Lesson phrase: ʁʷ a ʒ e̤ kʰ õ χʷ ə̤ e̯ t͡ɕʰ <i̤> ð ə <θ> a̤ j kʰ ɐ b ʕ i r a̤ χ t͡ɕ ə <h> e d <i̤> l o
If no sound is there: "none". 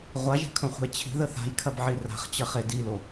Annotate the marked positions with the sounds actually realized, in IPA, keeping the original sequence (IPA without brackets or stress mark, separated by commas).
i̤, θ, χ, i